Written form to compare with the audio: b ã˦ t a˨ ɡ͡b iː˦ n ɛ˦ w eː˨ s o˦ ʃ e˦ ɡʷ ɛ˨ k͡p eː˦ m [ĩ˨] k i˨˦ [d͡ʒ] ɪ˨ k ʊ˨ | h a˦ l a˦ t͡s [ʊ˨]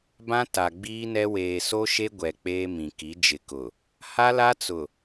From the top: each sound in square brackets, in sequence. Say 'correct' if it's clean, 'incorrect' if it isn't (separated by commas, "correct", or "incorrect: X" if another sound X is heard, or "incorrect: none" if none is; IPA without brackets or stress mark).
correct, correct, correct